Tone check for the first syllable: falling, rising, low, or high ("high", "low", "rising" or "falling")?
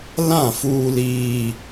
falling